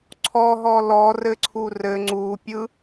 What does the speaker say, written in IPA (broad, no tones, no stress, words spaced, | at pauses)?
ǀʰɔɦɔ lɔrɘǀʰu rɘ ŋ͡ǀupʲɯ